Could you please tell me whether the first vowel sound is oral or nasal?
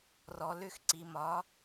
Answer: oral